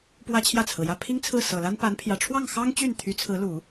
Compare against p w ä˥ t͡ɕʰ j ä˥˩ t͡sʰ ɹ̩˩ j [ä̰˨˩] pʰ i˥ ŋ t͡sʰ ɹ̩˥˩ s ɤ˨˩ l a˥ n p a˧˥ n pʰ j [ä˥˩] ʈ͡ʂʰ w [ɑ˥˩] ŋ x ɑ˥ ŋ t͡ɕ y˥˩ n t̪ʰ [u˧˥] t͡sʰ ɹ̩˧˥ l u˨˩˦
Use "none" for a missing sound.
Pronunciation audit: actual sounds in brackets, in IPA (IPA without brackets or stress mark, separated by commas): ä˥˩, ä˨˩, ɑ˥˩, y˧˥